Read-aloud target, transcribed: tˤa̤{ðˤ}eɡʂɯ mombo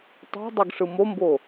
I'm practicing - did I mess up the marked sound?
yes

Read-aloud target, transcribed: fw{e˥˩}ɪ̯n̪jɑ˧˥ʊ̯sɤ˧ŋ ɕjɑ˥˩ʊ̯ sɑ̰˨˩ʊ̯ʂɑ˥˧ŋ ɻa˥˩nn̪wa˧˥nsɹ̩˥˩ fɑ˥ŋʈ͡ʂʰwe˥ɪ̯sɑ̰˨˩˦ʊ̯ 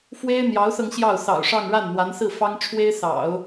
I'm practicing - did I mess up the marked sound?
yes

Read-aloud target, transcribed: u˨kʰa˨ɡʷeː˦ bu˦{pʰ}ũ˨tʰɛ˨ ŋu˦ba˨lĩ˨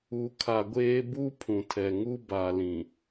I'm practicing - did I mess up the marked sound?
no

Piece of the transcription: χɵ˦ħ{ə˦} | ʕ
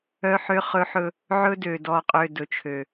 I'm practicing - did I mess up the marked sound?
yes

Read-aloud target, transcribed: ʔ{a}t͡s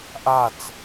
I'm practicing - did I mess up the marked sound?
no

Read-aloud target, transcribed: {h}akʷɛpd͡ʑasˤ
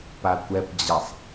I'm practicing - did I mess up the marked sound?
yes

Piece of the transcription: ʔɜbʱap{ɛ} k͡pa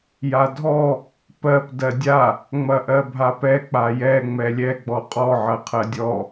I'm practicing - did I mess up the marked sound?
no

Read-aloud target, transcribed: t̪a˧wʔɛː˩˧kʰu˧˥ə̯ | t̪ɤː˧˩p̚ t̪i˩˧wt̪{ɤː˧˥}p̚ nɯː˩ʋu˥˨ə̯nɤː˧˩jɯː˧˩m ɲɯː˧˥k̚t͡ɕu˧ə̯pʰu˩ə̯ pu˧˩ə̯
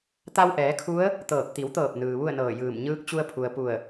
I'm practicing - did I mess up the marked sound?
yes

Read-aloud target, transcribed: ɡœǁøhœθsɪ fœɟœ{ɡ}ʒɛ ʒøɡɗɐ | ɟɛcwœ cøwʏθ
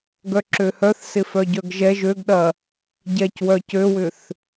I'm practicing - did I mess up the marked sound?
no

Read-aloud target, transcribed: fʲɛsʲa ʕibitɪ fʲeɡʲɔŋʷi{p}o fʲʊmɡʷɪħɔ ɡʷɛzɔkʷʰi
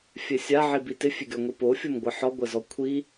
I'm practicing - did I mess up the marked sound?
no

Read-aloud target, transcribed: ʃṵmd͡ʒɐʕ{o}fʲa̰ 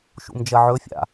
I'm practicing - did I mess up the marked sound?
yes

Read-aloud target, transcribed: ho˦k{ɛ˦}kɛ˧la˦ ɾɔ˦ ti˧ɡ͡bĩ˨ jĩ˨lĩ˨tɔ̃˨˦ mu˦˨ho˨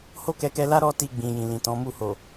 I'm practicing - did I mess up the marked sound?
yes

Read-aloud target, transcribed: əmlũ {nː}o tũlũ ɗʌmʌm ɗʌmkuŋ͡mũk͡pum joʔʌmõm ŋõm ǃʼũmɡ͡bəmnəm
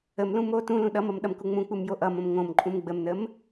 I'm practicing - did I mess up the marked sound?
yes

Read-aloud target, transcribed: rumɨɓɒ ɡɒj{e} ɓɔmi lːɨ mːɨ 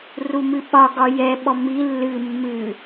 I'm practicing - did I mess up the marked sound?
yes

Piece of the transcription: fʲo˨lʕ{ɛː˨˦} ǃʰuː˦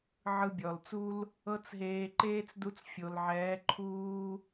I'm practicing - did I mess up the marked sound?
no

